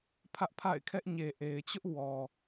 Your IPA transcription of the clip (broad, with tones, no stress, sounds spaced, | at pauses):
pʰ ä˦ ʔ pʰ a̰˦˨ ɪ̯ kʰ ɛ˦ ʔ ɲ e˨ ʔ e˨ ɪ̯ t͡ɕ ʊ˦ ʔ w ɔ˨